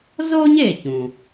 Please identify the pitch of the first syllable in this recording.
high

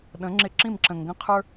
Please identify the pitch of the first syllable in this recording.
rising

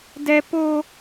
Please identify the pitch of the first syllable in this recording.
high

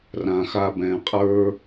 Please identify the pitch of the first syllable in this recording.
low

